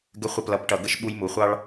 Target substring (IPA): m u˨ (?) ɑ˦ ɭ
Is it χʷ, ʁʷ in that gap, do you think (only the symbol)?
χʷ